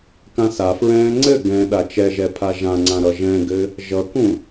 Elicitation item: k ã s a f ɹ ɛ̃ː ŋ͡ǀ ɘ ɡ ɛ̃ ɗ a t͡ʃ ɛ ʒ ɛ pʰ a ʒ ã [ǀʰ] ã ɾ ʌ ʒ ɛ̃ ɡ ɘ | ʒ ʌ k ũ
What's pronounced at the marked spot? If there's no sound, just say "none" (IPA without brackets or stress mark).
ŋ͡ǀ